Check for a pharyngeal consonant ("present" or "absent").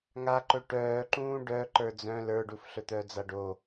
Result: absent